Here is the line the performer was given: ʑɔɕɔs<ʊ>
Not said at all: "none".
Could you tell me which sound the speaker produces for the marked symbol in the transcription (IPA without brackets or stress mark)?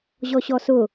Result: ʊ